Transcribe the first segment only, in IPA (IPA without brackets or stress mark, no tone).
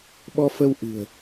ɓ